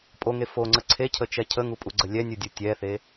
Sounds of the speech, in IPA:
pʼ o ŋ e f o ŋ͡ǀ ə ǀʰ e cʰ ə t͡ʃ ɛ cʰ ə ŋ u pʼ u ɡ͡ǀ ə lʲ ɛ nʲ u dʲ u tʲ ɛ θ e

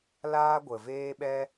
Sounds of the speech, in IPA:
l aː˦ ɡʷ ə˨ v eː˦ ɓ ɛ˦

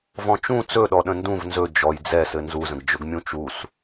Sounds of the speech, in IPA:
v ɔ̃ t͡ʃ ũ t͡s ɵ ɗ ɔ ɗ ə̃ n d ũ v n z ɵ d͡ʒ ɔ j d͡z ɛ s ɘ n z u z ə̃ ɡ d͡ʒ ɵ ɡ mʲ ũ t͡ʃ u s

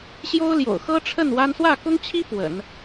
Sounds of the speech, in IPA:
ɕ j o˥ ʊ̯ l j o̰˨˩ ʊ̯ x ɤ˥ ʈ͡ʂʰ ə˥˩ n w a˥ n s w ä˥˩ k ʊ˥ ŋ t͡ɕʰ i˥ p w ə̰˨˩˦ n

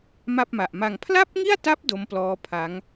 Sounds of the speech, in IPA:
m a˥˩ p̚ m a˨˩ ʔ m a˧ ŋ pʰ l a˥˩ p̚ ŋ i˥˩ a̯ t a˦˥ p̚ d o˦˥ m p l ɔː˦˥ pʰ a˦˥ ŋ

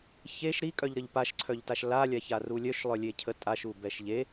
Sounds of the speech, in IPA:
ç e ʃ ɾ i kʼ œ ʎ ɾ ə ʎ p a ʃ ǀʰ œ ʎ t a ʃ l a lʲ a ç a r u lʲ œ ʃ lˠ œ lʲ e cʰ ə tʼ a ʃ u b ɛ ʃ ʎ e

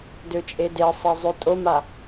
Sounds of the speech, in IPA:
d ø t͡ʃʼ e d e sˤ e zˤ ø tʼ o m a

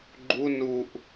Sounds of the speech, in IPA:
ɡ͡ǃ u n u ʔ

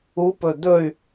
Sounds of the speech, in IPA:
u p ɵ d̪ ɵ y̯

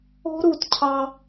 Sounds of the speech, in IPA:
o̤˦ ɾ u˨ t cʰ ɑ˦

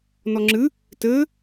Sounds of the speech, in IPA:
n ɔ ŋ͡ǁ ɨ | t ɘ

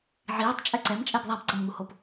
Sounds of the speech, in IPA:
ʕ iː tˤ t͡ʃʼ ɛ ǀ ɛ m t͡ʃʼ ɛ b ðˤ a b ǀ ʌ m ŋ u h o p

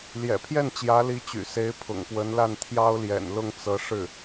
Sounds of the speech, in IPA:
l j ɛ̰˨˩ pʰ j ɛ˥˩ n t͡ɕ j ä˧˥ l i˧˥ t͡ɕ y̰˨˩ s e˧˥ ɪ̯ pʰ ʊ̰˨˩ ŋ p w ə˧˥ n l a˥˩ n t̪ʰ j ɑ˥ ʊ̯ l j ɛ̰˨˩ n l ʊ˥˩ ŋ t͡s ɤ˧˥ ʂ ɻ̩˥˩

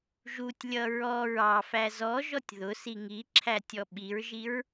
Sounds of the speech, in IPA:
ʒ u tʲ lʲ ʌ ɹ ɔ ɹ ɑ f æ z ɔ ʒ ɔ tʲ ð ʊ s i ŋ i ǁʰ æ tʲ ɔ ɓ i ɹ ʒ i ɹ

